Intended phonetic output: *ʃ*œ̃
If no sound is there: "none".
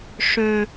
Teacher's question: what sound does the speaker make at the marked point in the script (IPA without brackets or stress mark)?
ʂ